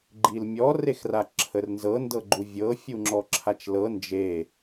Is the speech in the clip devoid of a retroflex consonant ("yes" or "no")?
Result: yes